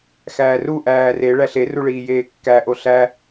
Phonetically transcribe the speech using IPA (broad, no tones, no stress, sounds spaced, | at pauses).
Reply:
x æː r u ʔ æː r e ɭ æ ɬ e r u ɭ iː j eː kː æ ʔ o ɬ æ